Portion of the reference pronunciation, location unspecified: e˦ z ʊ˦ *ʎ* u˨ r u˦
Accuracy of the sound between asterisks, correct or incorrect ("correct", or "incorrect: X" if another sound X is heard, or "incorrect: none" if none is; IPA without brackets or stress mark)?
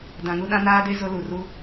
incorrect: l